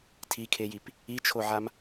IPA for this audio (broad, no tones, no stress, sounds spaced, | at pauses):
tʰ i kʰ e j i p | i t͡ʃʰ o ʕ a m